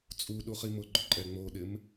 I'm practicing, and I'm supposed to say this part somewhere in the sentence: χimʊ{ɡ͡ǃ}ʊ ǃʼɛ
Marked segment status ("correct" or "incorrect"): correct